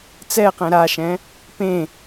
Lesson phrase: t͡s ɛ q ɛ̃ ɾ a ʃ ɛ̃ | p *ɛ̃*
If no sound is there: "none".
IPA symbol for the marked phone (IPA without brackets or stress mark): ẽ